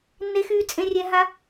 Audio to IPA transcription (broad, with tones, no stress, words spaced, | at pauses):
nːe˧xyː˧ t͡sʼẽ˧rʲɛ˧ ɦa˧